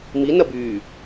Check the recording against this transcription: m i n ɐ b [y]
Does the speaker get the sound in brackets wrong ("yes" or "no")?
no